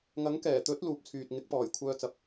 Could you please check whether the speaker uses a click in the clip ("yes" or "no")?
no